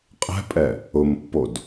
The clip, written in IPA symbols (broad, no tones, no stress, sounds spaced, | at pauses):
qʼ ɛ̤ pʼ ɛ | ʊ m pː o d